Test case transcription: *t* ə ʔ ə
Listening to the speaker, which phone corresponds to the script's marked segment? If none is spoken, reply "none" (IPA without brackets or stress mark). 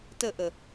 t